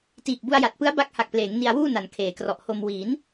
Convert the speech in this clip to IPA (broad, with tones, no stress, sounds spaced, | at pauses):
t iː˨˩ k̚ b u˧ a̯ j a˨˩ t̚ p ɯ˦˥ a̯ b a˦˥ k̚ h a˨˩ k̚ p l eː˩˦ ŋ n i˧ a̯ w uː˥˩ n a˨˩ n kʰ eː˩˦ k r ɔ˨˩ ʔ h o˧ m w iː˩˦ n